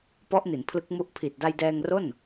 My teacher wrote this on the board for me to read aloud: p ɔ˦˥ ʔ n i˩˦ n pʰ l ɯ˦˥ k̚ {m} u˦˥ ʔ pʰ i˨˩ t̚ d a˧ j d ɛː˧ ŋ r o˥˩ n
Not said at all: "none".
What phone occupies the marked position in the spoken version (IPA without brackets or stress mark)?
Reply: m